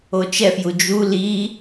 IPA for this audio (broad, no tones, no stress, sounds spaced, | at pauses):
o t͡ʃ ɛ f j u d͡ʒ u l i